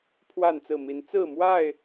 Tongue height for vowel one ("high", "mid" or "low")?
low